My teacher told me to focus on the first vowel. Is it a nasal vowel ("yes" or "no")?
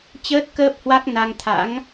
no